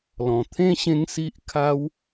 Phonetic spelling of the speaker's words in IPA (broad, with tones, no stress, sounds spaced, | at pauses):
l ɔ̃˨˩ t̪ʰ ẽ˥˧ ɕ ẽ˧ ŋ s i˦ ʔ kʰ a˦ w